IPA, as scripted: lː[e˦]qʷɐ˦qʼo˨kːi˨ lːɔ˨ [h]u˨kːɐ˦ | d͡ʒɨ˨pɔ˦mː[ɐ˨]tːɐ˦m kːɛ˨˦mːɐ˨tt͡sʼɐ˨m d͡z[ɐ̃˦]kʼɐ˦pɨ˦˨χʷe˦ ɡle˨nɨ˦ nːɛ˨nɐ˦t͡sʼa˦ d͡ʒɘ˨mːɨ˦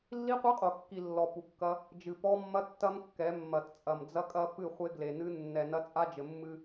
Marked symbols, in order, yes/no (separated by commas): no, no, no, no